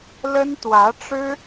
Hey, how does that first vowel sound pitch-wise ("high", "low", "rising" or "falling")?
high